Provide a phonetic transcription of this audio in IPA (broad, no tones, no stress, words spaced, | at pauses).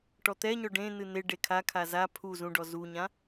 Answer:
ʈɔt̪ɛɲɔ ɖẽ n̪ɨn̪e ɖekʰa kʰaza pʰu zũɖɔ zuɲã